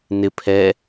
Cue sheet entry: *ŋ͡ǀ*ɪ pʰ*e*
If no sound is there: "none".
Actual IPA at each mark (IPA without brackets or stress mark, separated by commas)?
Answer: n, ɛ